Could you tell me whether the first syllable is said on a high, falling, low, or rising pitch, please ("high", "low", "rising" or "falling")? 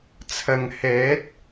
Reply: low